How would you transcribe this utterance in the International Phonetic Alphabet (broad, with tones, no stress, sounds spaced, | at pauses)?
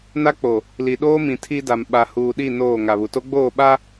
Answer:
n a˦ k͡p o˨ | l i˨ ɗ oː˦ m ĩ˨ tʰ i˦ d a˨ m ɓ a˨ h uː˨ ɗ i˦˨ n oː˦˨ ŋ a˨ β u˨ t o˦ ɡ͡b oː˦˨ ɓ a˦